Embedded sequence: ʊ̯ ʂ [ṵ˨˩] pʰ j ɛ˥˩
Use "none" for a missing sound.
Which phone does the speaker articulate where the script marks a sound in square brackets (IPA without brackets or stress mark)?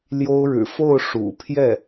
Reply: ṵ˨˩